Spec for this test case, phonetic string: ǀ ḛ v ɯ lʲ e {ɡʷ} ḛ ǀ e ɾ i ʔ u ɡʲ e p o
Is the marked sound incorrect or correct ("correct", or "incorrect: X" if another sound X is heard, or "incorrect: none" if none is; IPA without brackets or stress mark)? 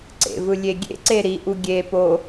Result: incorrect: ɡʲ